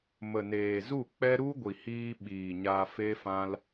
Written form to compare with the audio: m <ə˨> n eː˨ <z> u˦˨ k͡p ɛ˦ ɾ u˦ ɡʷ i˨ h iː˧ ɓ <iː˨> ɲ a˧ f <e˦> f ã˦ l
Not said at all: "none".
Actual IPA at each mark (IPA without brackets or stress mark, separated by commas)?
ə˨, z, iː˨, e˦